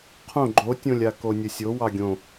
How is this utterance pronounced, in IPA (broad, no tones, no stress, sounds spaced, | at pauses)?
qʰ õ ɡ͡ǃ o tʲ õ lʲ a k o nʲ ə sʲ o w ɑ ɡʲ õ